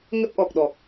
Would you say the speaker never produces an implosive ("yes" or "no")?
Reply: no